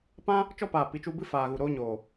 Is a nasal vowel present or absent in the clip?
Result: present